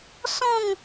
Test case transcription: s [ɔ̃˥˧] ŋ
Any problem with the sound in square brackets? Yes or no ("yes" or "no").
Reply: no